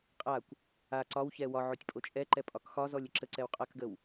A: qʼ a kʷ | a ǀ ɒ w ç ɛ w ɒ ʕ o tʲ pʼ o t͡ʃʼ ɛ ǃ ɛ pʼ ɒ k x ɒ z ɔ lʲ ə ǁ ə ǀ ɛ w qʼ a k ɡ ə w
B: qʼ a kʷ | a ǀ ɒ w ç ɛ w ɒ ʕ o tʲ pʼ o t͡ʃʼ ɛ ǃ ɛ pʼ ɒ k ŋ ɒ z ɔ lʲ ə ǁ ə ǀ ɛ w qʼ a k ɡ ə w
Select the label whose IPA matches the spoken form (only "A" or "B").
A